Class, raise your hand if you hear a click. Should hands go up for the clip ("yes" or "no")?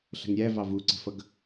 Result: yes